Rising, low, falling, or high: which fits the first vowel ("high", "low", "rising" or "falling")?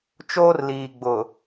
high